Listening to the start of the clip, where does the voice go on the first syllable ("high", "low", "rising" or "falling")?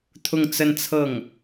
falling